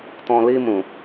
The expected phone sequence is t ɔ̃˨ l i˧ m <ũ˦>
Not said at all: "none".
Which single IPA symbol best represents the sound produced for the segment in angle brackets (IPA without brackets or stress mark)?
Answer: ũ˨